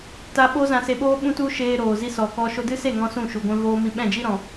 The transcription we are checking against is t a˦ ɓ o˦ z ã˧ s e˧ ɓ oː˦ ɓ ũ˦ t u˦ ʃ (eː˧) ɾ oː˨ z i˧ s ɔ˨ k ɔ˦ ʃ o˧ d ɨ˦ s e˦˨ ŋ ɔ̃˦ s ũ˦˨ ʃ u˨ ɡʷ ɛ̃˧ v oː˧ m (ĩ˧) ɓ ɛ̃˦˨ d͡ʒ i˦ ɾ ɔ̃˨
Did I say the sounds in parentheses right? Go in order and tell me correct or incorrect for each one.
correct, correct

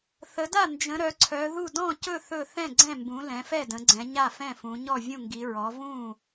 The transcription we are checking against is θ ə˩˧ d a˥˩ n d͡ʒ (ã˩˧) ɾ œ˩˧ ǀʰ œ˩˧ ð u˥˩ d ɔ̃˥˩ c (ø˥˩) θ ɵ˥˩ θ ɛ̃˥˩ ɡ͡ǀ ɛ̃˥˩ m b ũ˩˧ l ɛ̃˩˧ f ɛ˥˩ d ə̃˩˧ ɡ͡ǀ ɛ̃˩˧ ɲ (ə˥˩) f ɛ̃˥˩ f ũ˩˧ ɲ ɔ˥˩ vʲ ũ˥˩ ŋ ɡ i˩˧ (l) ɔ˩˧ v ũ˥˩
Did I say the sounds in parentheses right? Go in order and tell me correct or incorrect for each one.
incorrect, incorrect, incorrect, incorrect

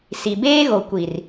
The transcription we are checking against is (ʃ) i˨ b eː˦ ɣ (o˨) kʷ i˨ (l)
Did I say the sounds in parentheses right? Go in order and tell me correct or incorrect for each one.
incorrect, correct, incorrect

